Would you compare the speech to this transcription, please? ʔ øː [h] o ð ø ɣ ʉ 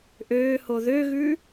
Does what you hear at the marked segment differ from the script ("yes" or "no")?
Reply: no